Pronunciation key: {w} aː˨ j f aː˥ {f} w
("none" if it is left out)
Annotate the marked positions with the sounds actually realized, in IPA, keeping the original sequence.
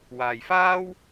w, none

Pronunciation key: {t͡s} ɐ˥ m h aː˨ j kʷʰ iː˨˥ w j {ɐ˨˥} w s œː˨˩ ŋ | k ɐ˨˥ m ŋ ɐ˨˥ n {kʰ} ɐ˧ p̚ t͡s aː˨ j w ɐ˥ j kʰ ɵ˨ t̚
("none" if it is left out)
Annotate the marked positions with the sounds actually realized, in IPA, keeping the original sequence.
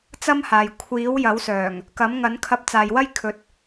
t͡s, ɐ˨˥, kʰ

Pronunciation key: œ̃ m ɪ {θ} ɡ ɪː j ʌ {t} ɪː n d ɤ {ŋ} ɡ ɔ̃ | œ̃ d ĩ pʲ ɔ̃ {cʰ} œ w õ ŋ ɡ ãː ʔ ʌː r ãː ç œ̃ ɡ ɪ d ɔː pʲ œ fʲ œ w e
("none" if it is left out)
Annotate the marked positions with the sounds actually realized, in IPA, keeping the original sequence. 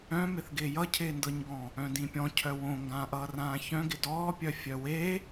θ, cʰ, ɲ, cʰ

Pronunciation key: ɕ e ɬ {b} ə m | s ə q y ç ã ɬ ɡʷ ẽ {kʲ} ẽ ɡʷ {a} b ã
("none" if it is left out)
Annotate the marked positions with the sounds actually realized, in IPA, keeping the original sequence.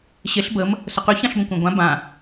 b, kʷ, ã

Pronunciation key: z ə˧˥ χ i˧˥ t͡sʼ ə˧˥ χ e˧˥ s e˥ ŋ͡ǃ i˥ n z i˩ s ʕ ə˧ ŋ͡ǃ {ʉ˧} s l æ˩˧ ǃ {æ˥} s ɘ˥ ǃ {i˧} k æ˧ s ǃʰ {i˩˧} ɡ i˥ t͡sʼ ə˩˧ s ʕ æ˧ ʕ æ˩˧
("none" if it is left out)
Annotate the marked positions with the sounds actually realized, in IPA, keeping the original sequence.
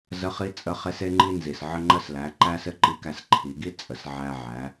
ə˧, æ˥, i˧˥, i˩˧

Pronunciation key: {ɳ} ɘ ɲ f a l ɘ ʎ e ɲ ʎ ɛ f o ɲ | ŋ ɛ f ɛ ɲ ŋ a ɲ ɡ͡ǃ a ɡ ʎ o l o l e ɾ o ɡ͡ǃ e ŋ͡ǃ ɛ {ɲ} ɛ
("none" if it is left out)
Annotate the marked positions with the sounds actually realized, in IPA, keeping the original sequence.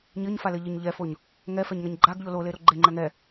ɲ, ŋ

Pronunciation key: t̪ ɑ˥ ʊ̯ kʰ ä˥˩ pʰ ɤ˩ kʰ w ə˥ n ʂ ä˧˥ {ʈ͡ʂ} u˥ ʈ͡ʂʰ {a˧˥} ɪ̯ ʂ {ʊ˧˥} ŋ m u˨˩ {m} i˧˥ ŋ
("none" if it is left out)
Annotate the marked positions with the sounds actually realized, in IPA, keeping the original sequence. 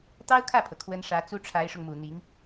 t͡s, a˧˥, ʊ˧, n̪

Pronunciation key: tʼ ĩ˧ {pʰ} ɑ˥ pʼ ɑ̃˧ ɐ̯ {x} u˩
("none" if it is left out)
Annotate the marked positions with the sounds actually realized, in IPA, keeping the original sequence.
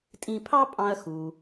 pʰ, x

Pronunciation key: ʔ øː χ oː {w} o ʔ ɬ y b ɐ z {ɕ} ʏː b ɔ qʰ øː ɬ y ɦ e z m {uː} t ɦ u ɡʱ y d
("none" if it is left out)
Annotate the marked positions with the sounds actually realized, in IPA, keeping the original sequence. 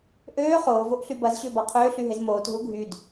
v, ɕ, oː

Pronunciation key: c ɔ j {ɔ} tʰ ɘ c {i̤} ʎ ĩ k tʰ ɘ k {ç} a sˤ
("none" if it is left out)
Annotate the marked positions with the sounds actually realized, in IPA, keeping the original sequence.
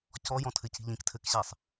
ɔ̃, i̤, ɕ

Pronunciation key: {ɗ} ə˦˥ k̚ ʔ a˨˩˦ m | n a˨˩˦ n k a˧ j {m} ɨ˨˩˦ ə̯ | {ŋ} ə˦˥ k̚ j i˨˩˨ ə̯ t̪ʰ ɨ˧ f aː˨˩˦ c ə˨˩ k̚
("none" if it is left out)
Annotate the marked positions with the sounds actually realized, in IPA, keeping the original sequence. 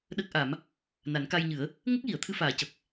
ɗ, ɲ, ŋ

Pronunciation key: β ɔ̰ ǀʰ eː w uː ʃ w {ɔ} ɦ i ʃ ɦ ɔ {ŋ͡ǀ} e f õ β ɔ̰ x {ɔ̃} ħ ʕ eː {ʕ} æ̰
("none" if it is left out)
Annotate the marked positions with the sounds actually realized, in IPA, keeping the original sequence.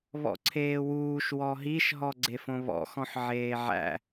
ɔ, ɡ͡ǀ, ɔ̃, ʕ

